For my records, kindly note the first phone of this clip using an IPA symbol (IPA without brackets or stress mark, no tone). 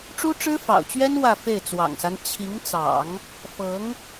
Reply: ʈ͡ʂ